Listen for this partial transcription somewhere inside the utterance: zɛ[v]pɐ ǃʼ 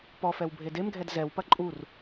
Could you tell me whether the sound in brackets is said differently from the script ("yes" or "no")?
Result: yes